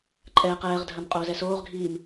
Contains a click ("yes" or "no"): yes